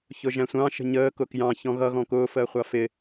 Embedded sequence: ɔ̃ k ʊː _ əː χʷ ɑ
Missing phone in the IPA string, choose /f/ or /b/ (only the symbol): f